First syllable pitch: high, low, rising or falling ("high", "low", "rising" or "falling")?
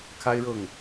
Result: high